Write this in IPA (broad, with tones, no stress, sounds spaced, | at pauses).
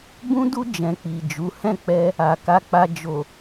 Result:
b ũ˦ d u˦ d͡ʒ ɛ̃˧ k͡p i˨ d͡ʒ u˨˦ h ɛ̃˦˨ k͡p ɛ˧ | a˨ k a˧ k͡p a˧ d͡ʒ o˨